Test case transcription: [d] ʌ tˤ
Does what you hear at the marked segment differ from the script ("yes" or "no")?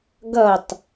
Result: yes